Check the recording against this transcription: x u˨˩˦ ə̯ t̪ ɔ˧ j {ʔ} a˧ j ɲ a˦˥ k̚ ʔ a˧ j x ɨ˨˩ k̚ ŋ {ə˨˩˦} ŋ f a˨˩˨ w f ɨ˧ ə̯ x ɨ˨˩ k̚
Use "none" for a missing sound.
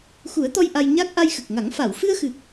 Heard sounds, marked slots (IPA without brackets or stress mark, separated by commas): ʔ, a˨˩˦